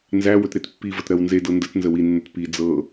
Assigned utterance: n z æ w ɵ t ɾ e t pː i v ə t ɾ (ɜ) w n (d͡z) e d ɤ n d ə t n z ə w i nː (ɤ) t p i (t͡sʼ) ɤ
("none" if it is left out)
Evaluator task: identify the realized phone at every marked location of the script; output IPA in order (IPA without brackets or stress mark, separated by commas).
ɜ, z, ɵ, d͡z